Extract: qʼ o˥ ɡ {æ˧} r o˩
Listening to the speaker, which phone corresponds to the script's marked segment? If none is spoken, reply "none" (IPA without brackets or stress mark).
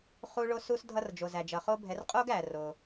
æ˩